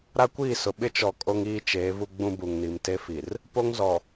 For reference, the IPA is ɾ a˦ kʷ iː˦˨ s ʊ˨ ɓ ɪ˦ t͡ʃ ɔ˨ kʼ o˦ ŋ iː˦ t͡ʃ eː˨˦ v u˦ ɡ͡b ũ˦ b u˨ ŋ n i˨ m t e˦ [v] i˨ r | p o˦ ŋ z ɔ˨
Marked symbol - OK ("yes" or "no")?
no